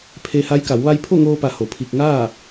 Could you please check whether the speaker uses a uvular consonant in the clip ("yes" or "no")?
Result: no